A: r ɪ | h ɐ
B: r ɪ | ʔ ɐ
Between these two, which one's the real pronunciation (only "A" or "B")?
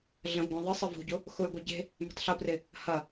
A